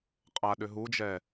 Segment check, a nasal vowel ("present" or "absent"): absent